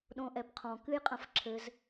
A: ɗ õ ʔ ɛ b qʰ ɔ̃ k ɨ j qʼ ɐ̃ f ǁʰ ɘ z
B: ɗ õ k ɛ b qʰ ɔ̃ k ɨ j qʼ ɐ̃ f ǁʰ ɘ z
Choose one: A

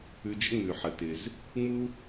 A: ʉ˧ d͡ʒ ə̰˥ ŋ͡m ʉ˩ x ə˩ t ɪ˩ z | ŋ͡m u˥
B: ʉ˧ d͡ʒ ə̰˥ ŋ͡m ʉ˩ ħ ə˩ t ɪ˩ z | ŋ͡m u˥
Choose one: B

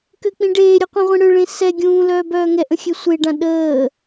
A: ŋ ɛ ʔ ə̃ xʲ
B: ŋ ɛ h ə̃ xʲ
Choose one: A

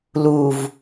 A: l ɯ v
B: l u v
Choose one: B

